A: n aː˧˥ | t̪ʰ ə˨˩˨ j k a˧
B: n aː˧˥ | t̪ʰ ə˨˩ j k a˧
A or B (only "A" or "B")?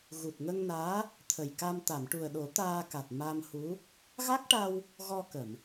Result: B